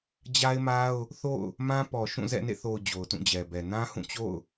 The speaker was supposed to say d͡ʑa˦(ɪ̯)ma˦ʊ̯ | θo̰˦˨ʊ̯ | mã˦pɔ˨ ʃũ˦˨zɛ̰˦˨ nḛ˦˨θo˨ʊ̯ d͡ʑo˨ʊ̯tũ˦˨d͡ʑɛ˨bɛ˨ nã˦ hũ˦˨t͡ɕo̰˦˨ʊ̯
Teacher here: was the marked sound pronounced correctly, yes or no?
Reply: yes